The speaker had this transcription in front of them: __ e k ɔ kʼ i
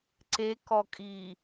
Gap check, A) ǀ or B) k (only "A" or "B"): A